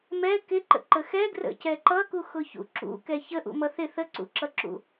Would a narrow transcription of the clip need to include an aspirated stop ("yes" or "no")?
no